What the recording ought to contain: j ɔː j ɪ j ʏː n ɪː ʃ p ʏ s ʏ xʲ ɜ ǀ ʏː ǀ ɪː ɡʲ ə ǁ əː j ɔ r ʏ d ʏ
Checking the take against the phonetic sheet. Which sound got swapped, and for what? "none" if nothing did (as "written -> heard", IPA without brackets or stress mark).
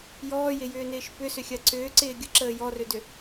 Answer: none